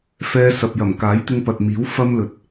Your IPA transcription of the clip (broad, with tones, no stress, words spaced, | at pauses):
fɛː˧sɐ˨p̚jɐ˨˩m kaː˨˥jt̪ɪ˧ŋpɐ˨t̚ miː˨˥w fɐ˥mlɵ˨t̚